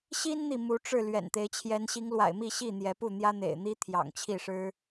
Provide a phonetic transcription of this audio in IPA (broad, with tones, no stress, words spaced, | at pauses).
ɕi˦nn̪i˨ mu˨˦ʈ͡ʂɻ̩˥˨ lɥɛ̰˨˩nt̪e˨˦ɪ̯t͡ɕʰjɛ˨˦n ɕi˨˦ŋlwa̰˨˩ɪ̯mi˥˨ ɕi˥˨n̪jɛ˨˦pu˥˨ n̪jä˦n̪ḛ˨˩ɪ̯n̪i˦ t̪ʰjɑ̰˨˩ŋt͡ɕʰi˥˨ʂɻ̩˦